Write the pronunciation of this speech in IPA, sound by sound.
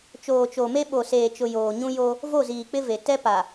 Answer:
t͡ʃ oː˨ t͡ʃ o˨ m e˦ ɓ o˨ s eː˨ t͡ʃ ʊ˨ j oː˨ ɲ ũ˦ j o˦ | v o˦˨ z iː˨ k͡p ɪ˦ v e˨ t ɛ˦ p a˨

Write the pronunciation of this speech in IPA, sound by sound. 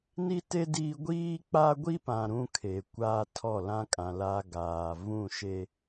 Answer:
n i˦ t e˦ d iː˦ ɡʷ iː˦ k͡p a˦ ɡʷ i˦ p ã˨ ɾ ũ˦ kʰ e˨ kʷ a˦ tʰ ɔ˦˨ l ã˦ kʼ ã˨ l a˦ ɡ aː˨ v ũ˦˨ ʃ e˦

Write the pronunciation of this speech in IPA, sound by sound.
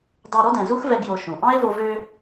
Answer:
d ɑ˧ ɾ ɔ˦ d ɛ̃˨ z u˦ x v ɛ˧ ɡ j o˧ ʃ ũ˨ ʔ ɑ̃˦ e̯ v o˧ v ø˧

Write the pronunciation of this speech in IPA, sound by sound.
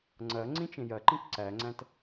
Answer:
ŋ͡ǀ ɐ ŋ͡ǀ ĩ t͡ʃ ẽ j ɐ ǃ ĩ k ǀ æ ŋ͡ǀ æ̃ t

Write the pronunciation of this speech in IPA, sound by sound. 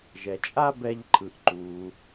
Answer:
ʒ ɛ˩ t͡ʃʼ a˥ b ɛ˧ ʎ ǃʰ ɯ˩ ʔ ǃ u˩

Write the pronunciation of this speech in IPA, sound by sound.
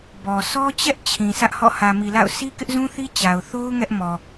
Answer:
b ɔ˨ sʰ ɔ˦ t͡ɕ ɛ˦ ʔ t͡ɕʰ ĩ˨ sʰ ä˦ ʔ h ɔ̰˦˨ h ä˨ m i˨ l a̰˦˨ ʊ̯ sʰ i˦ k ɪ˦ ʔ z ũ˦ θ i˦ t͡ɕ a˨ ʊ̯ θ o˦ ʊ̯ ŋ ɛ˦ ʔ m ɔ˨

